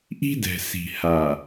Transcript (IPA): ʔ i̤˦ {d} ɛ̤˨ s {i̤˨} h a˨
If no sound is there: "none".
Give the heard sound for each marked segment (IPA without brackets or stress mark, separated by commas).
d, i̤˨